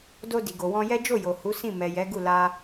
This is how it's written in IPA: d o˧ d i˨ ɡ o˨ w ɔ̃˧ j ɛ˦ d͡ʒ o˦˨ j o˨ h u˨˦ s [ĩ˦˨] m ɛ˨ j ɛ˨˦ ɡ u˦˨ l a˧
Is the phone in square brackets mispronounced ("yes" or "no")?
no